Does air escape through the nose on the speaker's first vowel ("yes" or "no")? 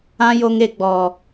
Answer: yes